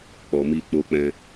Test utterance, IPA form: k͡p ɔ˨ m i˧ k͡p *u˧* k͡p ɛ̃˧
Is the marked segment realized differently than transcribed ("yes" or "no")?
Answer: yes